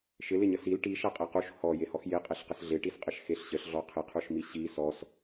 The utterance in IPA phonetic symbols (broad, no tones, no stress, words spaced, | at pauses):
ʃɪlɪɲə sil ʈi ʃaqʼequʃ hɔjehɔx jeqʼeɬqəs ɮeʈisqʼɪʃ xeɬɕəɬɮɔ qʰɪqʰuʃmi ɕi sɔs